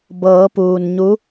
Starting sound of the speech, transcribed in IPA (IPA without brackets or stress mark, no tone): b